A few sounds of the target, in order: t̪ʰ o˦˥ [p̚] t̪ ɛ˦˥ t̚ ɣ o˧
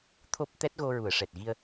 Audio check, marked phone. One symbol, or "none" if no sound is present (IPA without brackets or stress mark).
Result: p̚